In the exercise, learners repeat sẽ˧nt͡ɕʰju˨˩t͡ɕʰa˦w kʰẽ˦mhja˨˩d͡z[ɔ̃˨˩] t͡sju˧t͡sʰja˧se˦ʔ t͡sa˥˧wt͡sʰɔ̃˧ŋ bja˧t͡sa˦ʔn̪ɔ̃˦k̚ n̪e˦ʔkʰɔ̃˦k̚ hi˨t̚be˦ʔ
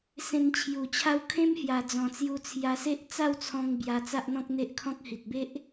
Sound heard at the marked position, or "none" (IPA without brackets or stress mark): ɔ̃˨˩